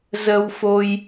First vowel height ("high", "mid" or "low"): mid